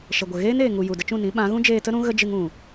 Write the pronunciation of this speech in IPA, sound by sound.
ʃ ə˨ ɡʷ ə˨ ɣ eː˦ n eː˨ ŋ u˨ j u˨ d ə˧ t͡ʃ ũ˦˨ n ĩ˨˦ ɓ ã˨˦ ɣ ũ˦ d͡ʒ eː˧ t ə˦ ɾ ũ˦ ɣ ə˦ d͡ʒ ɨ˧ ŋ ũ˨

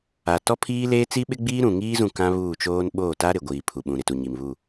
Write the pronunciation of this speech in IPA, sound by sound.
a˨ t ɔ˦ pʰ iː˦ l eː˦ t͡s i˦ ɓ ɪ˦ ɡ͡b iː˦ ɾ ũ˨ ŋ iː˦ z ũ˦˨ k ã˦ β uː˦˨ t͡ʃ oː˦ n ɓ oː˦˨ t a˦ ɾ ɪ˨ ɡʷ iː˨ pʰ u˨ ɓ ũ˨ ɾ ɪ˨ t u˨ ɲ i˨ m β u˦˨

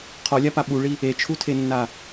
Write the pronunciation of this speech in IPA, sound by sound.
qʰ ɔ lʲ a p a ɓ u ɭ i | e t͡ʃʰ u tʰ e nː a

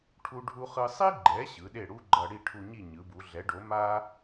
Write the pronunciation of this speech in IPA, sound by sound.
ʈʰ u˥ ɖʱ u˥ χ ɯ˥ sˤ i˥ ɡ͡ǃ ɛ˩˥ ɕ ɯ˩˥ ɗ e˥˩ ɽ u˥ ɡ͡ǃ ʌ˧ ɽ i˥˩ ʈʰ u˧ ɲ i˥˩ ɲ ɯ˩˥ b u˩˥ ɮ ɛ˩˥ ɖ o˩˥ m a˥

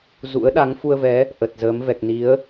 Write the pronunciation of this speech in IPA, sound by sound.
z ṵ˧˥ ə̯ ɗ a˨˦ ŋ f u˧ ə̯ v ɛ˨˦ | ʔ ə˨˩ t̚ z əː˨˦ m v ɛ˨˩ k̚ n i˨˦ ə̯

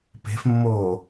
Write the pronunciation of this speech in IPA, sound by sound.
p e̤ f mː oː

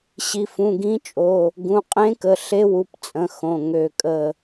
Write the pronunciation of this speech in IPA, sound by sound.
ɕ i˩˧˩ f ũ˩˧˩ ɡ ĩ˧˥ t͡ʃʼ o˩˧˩ | ɡ ũ˩˧˩ qʼ ẽ˧˥ k ə˩˧˩ ɬ e˧˥ w u˩˧˩ p t͡sʼ ə̃˩˧˩ x õ˩˧˩ ŋ ø˧˩ kʼ ə˧˩

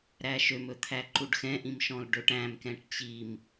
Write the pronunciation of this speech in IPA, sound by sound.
ɾ æ ʃ ø m ɵ t̪ʰ æ ǃ u ɖ x ɛ̃ ʔ ĩ m ʃ ɔ̃ l ɖ ɵ ʈ æ̃ m k ɛ̃ ʈ t͡ɕ i m

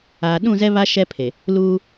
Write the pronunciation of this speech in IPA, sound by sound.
aː˨ ɗ ũ˦˨ z ɛ˦ β a˦ ʃ ɛ˦ pʰ e˨ | l uː˦

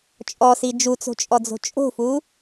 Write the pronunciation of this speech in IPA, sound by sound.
t͡ʃʼ ɔ s i d͡ʒ u t͡s o̤ t͡ʃʼ ɔ d͡z o̤ t͡ʃʼ o̤ f u

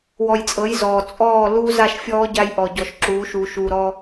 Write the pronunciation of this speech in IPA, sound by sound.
w ɔ˨ j t͡sʼ ɤ˨˦ j z ɔː˨ t͡sʼ ɔː˦˨ l uː˦ z a˦˨ ʃ fʲ ɔː˦ ɟ a˦ j ʔ ɔ˨ ɟ ɔ˨ ʃ ǁ uː˨˦ ʃ uː˨ ʃ uː˨ ɾ ɔ˦

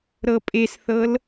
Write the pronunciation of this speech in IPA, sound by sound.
ɾ ɤ pʼ e s θ ɤ l

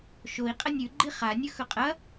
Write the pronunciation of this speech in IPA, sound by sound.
ʃ o i̯ qʼ ɐ nʲ ʉ ɡ͡ǃ i χ a nʲ ɵ x ɵ qʼ ɐ

